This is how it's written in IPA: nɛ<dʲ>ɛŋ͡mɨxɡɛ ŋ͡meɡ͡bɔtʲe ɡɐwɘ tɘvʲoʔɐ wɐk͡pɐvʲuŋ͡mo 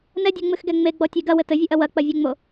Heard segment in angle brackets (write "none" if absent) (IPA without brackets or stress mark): dʲ